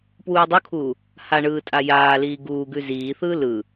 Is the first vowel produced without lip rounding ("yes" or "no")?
no